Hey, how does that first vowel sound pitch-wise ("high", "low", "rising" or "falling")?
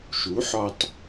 rising